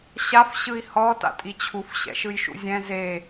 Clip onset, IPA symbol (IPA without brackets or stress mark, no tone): ɕ